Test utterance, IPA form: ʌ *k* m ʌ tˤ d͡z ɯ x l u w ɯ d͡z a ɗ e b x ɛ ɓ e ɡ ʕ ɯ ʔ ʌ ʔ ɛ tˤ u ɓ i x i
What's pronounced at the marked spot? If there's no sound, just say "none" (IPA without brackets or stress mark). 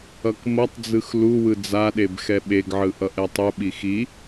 k